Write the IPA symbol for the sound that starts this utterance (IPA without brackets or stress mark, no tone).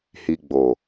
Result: h